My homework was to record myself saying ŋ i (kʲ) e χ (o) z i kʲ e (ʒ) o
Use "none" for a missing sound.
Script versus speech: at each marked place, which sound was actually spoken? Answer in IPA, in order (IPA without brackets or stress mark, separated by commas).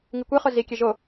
kʷ, o, ʒ